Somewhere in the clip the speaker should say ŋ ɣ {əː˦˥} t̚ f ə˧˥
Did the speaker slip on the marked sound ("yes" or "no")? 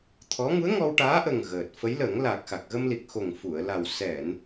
yes